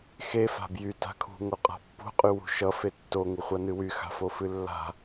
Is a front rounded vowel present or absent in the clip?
present